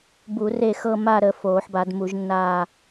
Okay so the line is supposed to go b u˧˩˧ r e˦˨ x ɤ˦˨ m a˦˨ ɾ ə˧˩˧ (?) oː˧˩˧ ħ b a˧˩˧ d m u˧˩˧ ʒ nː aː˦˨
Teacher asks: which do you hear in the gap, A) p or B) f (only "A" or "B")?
B